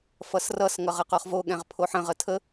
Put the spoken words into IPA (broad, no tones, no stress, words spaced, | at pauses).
fʌsrʌs ŋʌʁəqoχvo ɠɛ̃ʁpʰoħə̃ ʁətʰə